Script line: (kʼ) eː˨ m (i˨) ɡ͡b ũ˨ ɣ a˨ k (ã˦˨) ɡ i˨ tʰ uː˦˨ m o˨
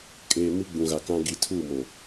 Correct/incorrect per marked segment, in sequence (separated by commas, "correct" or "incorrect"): correct, incorrect, incorrect